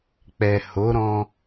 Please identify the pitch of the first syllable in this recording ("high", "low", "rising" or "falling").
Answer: low